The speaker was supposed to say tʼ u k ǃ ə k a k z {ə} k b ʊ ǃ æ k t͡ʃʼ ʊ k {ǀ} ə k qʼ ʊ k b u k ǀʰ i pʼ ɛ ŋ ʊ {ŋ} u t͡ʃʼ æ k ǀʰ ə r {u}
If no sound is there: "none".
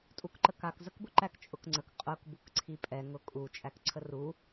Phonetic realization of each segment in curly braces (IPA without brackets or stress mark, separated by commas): ə, ŋ͡ǀ, kʼ, u